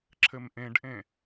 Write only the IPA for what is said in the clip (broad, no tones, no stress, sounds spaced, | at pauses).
ǁʰ ɘ m ʔ ẽ ɖ ʔ ẽ